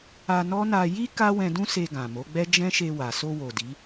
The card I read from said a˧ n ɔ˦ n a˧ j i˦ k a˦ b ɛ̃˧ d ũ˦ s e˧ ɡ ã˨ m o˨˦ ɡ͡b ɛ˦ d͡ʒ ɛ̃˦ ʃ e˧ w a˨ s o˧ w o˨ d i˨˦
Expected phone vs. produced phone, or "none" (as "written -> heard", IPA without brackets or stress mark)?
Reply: b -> w